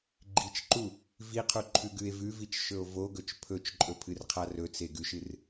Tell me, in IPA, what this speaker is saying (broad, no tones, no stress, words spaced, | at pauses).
ɡ͡ǃit͡ʃǃu | viqʰuǃʰʉ ɡʉe̯vʉvit͡ʃ ʃɵo̯voɡɵt͡ʃ pʰɵt͡ʃǃʼɵ pʰɨrqʰarɵ t͡seɡʉʃɨr